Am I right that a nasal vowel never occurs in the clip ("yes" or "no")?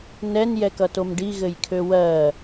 yes